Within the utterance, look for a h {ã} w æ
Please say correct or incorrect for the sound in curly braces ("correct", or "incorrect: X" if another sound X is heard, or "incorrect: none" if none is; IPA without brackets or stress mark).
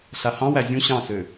incorrect: ɑ̃